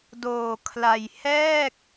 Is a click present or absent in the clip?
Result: absent